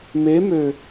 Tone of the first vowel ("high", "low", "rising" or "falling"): rising